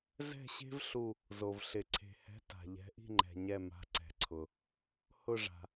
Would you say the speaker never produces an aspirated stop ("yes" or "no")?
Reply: no